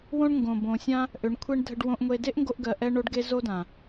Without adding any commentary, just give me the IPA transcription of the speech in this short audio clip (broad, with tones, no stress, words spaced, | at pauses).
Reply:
wõ˦ɳŋɡõ˨ bõ˨sʲã˦ | ʔʏ˨˦ɳkʷʰe˦ɳ dʱə˧ɖwõ˧ʔŋʷe˧ de˦ʔŋɡo˧ʔɡɜ˨ ʔɛ˦ ɳo˦ɖɡe˦ zo˦dã˨